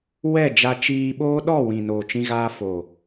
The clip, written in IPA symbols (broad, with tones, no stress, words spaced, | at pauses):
wɛ˦˨d͡ʒa˧ t͡ʃiː˧ɓoː˦ ɗɔ˦˨wĩ˨ noː˨t͡ʃĩ˧ɣaː˧ foː˨